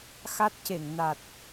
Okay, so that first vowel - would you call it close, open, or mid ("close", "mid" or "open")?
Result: open